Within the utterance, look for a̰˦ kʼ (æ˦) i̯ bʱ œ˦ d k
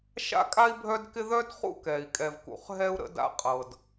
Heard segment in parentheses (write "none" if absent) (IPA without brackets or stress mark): a˦